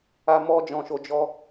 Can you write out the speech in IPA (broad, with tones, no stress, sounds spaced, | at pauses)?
a˦ m ɔ˦ d͡ʒ ɔ̃˦ ʃ o˦ d͡ʒ ɔ˦